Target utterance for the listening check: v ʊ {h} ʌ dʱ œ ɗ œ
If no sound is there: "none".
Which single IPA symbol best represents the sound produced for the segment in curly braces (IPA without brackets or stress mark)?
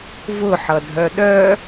ħ